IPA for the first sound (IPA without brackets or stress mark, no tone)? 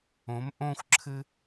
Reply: õ